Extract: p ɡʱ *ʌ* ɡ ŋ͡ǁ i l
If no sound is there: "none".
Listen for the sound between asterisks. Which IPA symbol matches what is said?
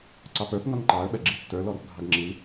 ɑ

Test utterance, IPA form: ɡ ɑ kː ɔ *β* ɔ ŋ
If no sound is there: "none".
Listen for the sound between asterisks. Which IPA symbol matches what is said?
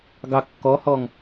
h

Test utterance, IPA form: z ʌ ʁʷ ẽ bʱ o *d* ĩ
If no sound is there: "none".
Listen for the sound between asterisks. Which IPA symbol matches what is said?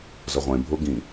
ɡ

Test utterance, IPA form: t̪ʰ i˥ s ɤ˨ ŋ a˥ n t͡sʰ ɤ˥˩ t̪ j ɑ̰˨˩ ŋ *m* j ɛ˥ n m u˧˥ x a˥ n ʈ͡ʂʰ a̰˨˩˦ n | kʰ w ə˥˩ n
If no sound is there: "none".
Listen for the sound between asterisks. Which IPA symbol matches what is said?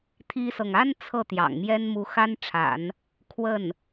m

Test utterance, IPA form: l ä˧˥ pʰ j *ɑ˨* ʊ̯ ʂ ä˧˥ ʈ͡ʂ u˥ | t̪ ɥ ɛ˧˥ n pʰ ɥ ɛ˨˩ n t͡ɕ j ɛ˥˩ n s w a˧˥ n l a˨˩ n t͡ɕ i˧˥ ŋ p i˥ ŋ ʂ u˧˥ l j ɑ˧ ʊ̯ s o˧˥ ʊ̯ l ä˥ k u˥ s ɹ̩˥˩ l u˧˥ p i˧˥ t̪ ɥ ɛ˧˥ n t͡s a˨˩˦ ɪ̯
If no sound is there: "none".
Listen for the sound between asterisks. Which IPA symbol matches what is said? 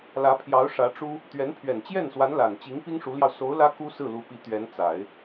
ɑ˧˥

